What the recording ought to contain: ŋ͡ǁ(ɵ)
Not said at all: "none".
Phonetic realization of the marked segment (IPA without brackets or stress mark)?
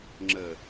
ə